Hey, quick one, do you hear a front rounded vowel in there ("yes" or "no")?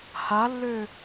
yes